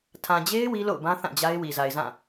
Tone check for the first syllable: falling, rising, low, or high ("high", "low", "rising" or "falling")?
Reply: low